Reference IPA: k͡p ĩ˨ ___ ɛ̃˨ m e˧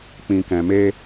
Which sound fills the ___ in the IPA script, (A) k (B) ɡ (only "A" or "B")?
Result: A